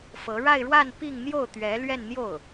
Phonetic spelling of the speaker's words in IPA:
f ɤ˧˥ ɻ a˥˧ ɪ̯ ɻ w a˥˧ n p i˥˧ ŋ n̪ j o˥˩ ʊ̯ t̪ ɥ ɛ˧˥ l ɥ ɛ˥˧ n n̪ j o˥˩ ʊ̯

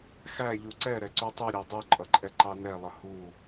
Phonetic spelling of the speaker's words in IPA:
x æ ʎ u ǀ ɛ ɾ ɛ ǀ u tˤ u ɾʲ æ dˤ u ǃʼ ʌ ǃʼ ɛ ǃ ɑ n ɛ lˠ ə h u

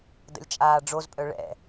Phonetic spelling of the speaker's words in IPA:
d ə̰ lʲ t͡ʃʼ aː ɖ͡ʐ o z pʼ œ ɭ ɛ̰

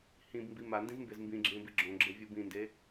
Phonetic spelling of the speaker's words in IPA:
h ĩ b m b i m a n d ĩ z m b e z m b ĩ ɡ͡ǁ ẽ b i ɡ͡ǁ õ ɡ͡ǁ e vʲ u b ĩ n d e

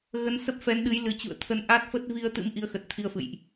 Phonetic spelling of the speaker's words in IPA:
ɣ ə˨˦ n s ə˦˥ p̚ f ɛ˨˦ n ɗ ɨ˨˦ j l ɨ˨˩ t͡ɕ ṵ˧˨ ə̯ t̪ʰ ə˨˦ n ʔ a˦˥ t̚ f ə˦˥ t̚ v i˧ ə̯ t̪ ɨ̰˧˥ m ʔ i˨˦ ə̯ x ə˨˩ t̚ t̪ʰ i˧ ə̯ f ɨ̰˧˨ j ʔ

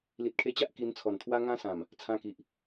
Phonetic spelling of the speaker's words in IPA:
l i˨ t̚ kʰ e˧ t͡ɕ a˦ ʔ k i˧ n t͡sʰ ɔ˨˩ n t̪ʰ w a˦ ŋ ã˦ s ã˨˩ m | t͡sʰ ã˧ k i˨ ʔ

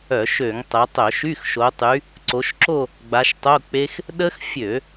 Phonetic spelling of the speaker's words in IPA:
œ˧˩˧ ʃ ø˧˩˧ ŋ tˤ ɛ˨˦ tˤ œ˧˩˧ ʃ y˧˥˧ x ʃ o˨˦ tˤ y˨˦ | ǀ o˨˦ ʃ ǁ o˥˧ | ɡ͡b a˨˦ ʃ tˤ o˧˥˧ k͡p e˦˥ x | ɗ ə˦˥ x fʲ ø˧˩˧

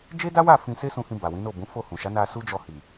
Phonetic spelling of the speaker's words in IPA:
d͡ʒ e˦ d a˦ w a˦˨ f ĩ˧ s e˦ s ũ˧ h ĩ˧ b a˨ w ĩ˨˦ n o˦˨ b ũ˨˦ f o˦˨ h ũ˨ ʃ a˨˦ n a˧ s u˦ d͡ʒ ɔ˧ h i˨

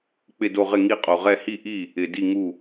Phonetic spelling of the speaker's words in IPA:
k͡p ɪ˧˩ d o˧˩ ʁ ɪ˧˩ ŋ i˧˩ qʼ o˩ ʁ ɛ˧˩ h i˧˩ ʔ i˧˩ | ɪ˩ d i˧˩ ŋ u˧˩

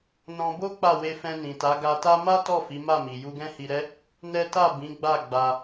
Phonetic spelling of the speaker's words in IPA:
n ɔ̃˧ b o˦ k͡p a˦˨ w e˧ f ɛ̃˧ n ĩ˨ t a˨˦ ɡ a˧ t a˦ m a˦ t ɔ˦˨ f i˨˦ m a˦˨ m i˨ j u˧ ɡ ɛ̃˦ h i˧ ɾ ɛ˦ | n ɛ˦ t a˦˨ b ĩ˨˦ ɡ͡b a˦˨ ɡ͡b a˧

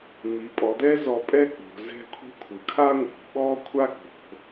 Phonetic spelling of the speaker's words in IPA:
m i˩˧ pʼ ɔ˩˧ d̪ ɛ˥ z ɔ˧ pʼ ɛ˥ k͡p o̤˩˧ z ɛ̤˥ kʷʰ i̤˥ kʷʰ ɯ˩˧ kʰ a˥ ŋʷ i̤˩˧ ɓ ɔ˥ kʷʰ a˥ ɡ͡b o̤˩˧

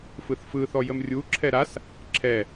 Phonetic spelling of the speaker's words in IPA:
f ɯ θ f ɯ θ ɔ j ə m rʲ u ǁʰ ɛ ɾ a s | ǁʰ ɛ

